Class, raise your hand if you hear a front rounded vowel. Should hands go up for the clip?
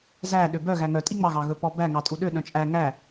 yes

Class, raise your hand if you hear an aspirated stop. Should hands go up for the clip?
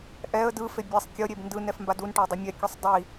no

